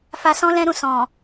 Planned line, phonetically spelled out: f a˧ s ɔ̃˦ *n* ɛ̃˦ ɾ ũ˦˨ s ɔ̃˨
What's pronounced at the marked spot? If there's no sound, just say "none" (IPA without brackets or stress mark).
l